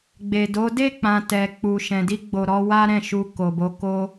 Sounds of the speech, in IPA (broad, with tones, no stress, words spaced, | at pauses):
ɡ͡be˨do˨˦ de˦˨k͡pã˨ tɛ˨k͡pu˨ ʃɛ̃˨di˧ɡ͡bo˨ ɾɔ˨˦ wa˦ɾɛ̃˦˨ʃu˧ ko˨bo˧ ko˧